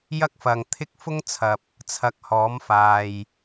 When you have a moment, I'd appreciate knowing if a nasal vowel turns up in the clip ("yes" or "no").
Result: no